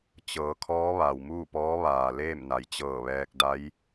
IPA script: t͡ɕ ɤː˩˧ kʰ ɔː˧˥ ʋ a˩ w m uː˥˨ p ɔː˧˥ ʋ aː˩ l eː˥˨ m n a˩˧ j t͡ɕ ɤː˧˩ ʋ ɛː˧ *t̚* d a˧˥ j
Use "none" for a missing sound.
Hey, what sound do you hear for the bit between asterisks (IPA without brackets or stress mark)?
k̚